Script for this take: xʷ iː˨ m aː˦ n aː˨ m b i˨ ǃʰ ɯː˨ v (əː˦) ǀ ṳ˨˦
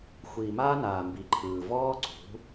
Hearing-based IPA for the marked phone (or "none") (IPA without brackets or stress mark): ɔː˦